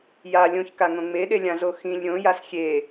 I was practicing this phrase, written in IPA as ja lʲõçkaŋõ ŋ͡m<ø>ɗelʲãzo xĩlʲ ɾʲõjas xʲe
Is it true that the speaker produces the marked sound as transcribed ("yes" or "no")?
no